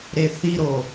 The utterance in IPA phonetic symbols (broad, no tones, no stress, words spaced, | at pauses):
ɾeθiɾo